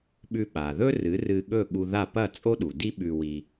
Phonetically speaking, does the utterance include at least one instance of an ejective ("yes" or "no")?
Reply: yes